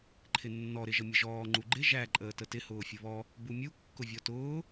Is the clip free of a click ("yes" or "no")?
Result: no